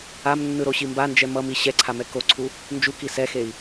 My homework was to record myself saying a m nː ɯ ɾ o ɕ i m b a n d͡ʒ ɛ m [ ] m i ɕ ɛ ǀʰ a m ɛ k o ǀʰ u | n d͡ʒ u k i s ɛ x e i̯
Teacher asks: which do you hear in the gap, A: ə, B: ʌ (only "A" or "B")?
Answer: B